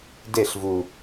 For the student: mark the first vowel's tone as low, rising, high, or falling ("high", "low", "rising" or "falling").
falling